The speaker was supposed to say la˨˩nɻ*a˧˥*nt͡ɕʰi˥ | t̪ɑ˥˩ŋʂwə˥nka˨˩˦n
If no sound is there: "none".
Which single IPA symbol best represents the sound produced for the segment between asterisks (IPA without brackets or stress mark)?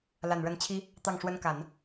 ə˧˥